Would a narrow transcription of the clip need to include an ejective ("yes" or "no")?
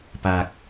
no